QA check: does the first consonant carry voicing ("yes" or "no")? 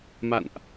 yes